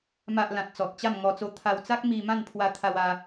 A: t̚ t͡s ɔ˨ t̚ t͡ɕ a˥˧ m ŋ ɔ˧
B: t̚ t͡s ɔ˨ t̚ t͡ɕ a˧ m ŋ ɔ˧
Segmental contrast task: A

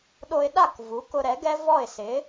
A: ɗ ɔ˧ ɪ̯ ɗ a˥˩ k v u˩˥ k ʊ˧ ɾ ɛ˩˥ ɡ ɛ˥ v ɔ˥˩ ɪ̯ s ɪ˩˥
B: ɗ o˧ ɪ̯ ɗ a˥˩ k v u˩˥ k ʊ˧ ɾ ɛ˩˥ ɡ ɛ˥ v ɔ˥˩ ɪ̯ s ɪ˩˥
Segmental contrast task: B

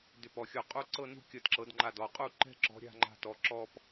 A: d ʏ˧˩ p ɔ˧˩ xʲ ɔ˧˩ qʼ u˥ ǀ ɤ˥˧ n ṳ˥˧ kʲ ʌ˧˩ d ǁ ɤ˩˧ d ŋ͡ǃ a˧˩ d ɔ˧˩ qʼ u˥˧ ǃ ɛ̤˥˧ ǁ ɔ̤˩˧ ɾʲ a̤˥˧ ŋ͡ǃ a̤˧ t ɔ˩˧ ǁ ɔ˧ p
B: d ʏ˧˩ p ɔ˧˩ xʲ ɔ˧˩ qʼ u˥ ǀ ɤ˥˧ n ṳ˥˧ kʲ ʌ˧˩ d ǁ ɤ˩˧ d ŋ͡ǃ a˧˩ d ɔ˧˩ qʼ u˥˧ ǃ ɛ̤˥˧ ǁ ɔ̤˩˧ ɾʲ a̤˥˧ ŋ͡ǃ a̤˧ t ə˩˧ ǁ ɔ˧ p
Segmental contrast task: A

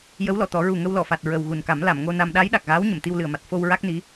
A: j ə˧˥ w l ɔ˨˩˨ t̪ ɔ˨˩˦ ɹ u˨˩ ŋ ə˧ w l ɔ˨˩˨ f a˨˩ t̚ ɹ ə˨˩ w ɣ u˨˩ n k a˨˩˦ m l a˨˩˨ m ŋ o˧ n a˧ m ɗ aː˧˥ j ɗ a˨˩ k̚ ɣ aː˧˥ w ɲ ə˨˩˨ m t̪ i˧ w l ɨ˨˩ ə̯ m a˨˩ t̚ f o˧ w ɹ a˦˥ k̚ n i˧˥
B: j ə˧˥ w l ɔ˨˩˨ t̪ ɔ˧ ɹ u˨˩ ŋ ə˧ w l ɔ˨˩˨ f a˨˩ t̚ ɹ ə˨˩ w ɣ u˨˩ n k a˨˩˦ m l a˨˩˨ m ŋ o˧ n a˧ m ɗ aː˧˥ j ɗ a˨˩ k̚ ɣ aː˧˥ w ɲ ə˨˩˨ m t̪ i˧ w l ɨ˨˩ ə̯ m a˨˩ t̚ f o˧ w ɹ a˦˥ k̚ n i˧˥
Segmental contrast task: A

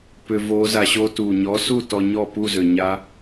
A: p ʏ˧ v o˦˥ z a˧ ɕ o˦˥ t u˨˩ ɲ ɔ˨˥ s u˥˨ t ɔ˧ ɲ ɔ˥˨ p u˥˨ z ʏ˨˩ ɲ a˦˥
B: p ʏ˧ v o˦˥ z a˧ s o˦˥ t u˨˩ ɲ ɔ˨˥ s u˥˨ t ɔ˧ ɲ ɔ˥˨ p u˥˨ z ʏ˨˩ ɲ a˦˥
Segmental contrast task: A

